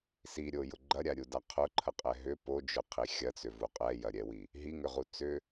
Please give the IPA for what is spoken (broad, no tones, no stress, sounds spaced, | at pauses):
s i ɾʲ o j ʊ ɡ͡ǃ ɐ ɾʲ a ɾʲ u d a qʰ ʊ ǃʰ ə qʼ ɛ ɦ ʏ p o d͡ʒ ʊ qʰ i xʲ ɐ t͡s ʏ v u qʼ ɛ j ɐ ɾʲ ɛ w i | ɦ i ŋ ʏ ʁ u t͡s ʏ